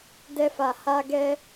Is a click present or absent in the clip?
absent